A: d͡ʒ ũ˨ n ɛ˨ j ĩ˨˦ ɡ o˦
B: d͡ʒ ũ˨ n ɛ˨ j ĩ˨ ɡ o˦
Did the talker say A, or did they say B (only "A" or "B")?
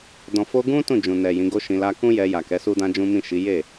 A